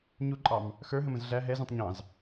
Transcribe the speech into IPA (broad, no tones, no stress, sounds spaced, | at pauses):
ɲ u ǃʼ ɑ m | x ə˞ ɦ ə̃ m ə̃ z ɮ æ ɦ ɛ z ũ tˤ ɲ ɑ̃ z